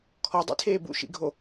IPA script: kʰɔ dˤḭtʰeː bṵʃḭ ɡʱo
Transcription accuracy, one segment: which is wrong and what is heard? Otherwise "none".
none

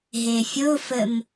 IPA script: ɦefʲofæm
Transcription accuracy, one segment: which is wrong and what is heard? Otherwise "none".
æ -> ə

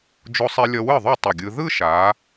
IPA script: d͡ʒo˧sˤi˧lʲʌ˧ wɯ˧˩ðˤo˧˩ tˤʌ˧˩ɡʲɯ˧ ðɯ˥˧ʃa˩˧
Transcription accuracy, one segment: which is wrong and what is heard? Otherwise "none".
none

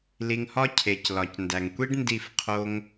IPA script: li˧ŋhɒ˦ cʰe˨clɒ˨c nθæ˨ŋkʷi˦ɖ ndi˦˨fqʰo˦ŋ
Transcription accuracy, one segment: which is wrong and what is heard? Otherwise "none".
θ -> d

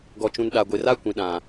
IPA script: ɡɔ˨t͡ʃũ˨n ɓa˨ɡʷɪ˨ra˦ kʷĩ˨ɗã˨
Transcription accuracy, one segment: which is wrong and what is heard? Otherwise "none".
ɓ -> ɗ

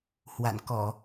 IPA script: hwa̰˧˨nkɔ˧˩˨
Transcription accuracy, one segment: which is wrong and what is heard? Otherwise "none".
none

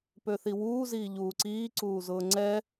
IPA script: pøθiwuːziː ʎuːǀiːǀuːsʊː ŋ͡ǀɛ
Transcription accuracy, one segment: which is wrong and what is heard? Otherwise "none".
s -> z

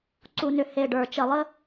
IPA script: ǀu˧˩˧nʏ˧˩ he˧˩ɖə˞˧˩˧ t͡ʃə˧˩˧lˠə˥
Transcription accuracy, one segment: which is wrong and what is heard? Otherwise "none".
none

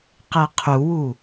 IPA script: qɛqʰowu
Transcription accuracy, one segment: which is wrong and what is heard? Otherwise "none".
o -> u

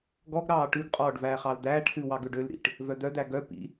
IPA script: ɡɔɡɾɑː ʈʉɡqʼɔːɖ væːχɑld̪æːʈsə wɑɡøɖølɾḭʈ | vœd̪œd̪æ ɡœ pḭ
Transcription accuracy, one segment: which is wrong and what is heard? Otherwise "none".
ə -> ʉ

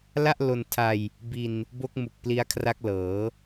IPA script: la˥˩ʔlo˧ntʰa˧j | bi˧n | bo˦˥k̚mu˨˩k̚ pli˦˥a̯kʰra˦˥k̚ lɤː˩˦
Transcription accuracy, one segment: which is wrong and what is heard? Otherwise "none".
none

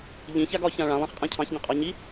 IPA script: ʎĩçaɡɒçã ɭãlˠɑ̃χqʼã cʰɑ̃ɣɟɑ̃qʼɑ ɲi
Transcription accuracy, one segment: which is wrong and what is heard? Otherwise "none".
ɣ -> ç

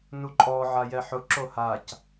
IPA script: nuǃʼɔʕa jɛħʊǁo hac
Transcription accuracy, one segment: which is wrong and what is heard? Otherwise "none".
none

